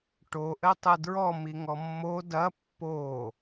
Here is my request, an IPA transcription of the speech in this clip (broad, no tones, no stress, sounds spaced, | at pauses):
ʈ o ʔ ɘ tˤ ɘ d ɹ ɔ m i ŋ ɔ mː o d ɐ pː o